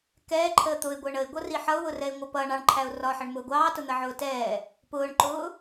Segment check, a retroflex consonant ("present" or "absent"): present